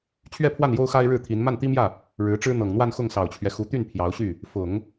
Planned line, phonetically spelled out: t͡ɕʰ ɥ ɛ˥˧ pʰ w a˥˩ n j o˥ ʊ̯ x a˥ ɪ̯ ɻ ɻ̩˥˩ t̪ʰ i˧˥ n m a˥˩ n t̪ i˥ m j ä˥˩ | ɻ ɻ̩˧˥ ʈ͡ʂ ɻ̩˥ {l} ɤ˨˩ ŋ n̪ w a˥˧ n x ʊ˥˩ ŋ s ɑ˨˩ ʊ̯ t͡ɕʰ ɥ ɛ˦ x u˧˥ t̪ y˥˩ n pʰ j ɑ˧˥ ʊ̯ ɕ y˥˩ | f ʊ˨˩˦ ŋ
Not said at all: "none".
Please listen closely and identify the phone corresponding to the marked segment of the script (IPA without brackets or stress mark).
n̪